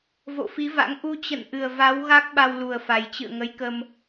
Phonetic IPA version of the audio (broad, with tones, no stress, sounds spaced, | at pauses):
v o̰˧˨ f i˨˦ v a̰˧˥ ŋ ʔ u˧ t͡ɕ ə̰˧˨ n ʔ ɨ˨˩ ə̯ v a˨˦ w ɣ a˦˥ k̚ ɓ a˧ w l u˨˩ ə̯ f a˨˩ j t͡ɕ ɨ̰˧˨ ə̯ ŋ ə˨˦ j k ə˧ m